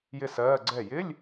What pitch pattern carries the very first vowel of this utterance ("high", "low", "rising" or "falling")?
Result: falling